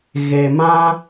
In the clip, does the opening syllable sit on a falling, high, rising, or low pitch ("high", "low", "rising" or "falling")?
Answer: low